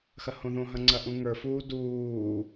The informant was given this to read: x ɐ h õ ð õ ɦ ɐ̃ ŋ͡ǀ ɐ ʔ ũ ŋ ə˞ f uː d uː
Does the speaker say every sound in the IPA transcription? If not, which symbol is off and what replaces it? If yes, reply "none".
none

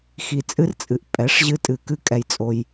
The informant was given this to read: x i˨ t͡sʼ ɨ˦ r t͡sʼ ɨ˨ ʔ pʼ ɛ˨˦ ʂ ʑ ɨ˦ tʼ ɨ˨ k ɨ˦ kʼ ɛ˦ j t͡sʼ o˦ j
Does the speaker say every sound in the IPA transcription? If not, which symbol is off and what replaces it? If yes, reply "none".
none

